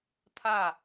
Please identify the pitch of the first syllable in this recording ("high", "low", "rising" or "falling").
falling